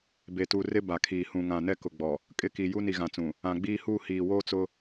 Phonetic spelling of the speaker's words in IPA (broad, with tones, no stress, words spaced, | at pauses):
be˨tu˨ rɪ˦ba˨kʰiː˨ hũ˨ŋã˨ nɛ˦kʊ˨ɡ͡bɔ˨ | kʼɪ˦ki˨ ju˦ni˨ɣã˨t͡sũ˨ | ã˨ɡ͡biː˦huː˦ hiː˨woː˦t͡sʊ˦